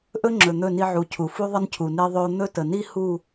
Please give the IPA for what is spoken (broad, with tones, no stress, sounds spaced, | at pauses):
ʔ ɵ˦ ŋ͡ǁ ɵ˨ n̪ ɵ˦˨ n i˦ ʕ u˨ cʰ u˨ f u˦ ðˤ ə˦ n cʰ u˨ n e˦ ðˤ ɵ˦ o̯ n̪ ɵ˦ t ə˨ n i˦ h u˦˨